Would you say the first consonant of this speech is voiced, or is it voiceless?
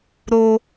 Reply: voiced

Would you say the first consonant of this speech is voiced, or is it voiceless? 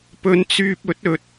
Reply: voiceless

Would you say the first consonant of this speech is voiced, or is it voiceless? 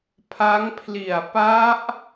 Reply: voiceless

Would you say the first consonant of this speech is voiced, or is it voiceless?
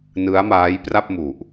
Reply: voiced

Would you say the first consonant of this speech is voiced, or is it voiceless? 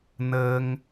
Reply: voiced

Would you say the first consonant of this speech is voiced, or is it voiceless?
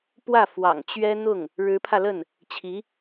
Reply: voiceless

